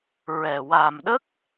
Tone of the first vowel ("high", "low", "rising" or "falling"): low